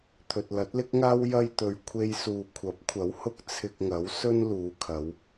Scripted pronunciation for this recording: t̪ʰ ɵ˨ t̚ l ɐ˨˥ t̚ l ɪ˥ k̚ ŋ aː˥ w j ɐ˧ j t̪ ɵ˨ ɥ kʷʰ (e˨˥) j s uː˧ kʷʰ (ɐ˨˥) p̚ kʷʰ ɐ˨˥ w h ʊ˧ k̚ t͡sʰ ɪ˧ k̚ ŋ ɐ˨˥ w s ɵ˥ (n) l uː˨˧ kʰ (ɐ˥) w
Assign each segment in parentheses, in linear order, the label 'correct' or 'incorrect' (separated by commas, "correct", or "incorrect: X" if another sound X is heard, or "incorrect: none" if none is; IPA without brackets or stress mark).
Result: incorrect: e˥, correct, correct, incorrect: ɐ˨˧